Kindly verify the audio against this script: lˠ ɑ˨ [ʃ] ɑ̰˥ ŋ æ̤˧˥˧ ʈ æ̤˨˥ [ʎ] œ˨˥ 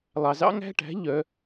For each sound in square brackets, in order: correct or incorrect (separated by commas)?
incorrect, correct